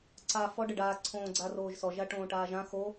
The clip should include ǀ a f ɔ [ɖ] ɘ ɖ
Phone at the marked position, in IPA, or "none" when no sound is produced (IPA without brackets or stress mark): ɖ